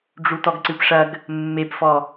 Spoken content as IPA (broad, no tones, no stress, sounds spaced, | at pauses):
ɖ͡ʐ u t ɔ ɡ ǀ ɨ p ʂ ɐ ɡ | mː e p f ɔ